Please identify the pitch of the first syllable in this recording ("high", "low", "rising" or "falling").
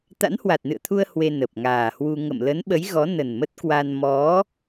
rising